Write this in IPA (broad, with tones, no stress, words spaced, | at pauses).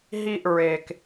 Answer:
ɦi˦˨ʔɹe˩k